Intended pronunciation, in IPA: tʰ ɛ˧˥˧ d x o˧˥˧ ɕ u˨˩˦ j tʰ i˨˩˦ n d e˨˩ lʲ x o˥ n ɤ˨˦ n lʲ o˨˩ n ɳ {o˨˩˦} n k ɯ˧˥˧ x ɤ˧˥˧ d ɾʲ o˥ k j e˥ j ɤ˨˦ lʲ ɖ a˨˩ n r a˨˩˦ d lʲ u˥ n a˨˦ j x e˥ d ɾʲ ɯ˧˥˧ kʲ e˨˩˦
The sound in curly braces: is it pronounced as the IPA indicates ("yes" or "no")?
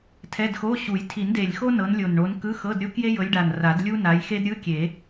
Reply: no